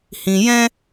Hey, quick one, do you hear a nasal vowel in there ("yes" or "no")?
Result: yes